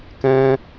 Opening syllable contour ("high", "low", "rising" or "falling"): high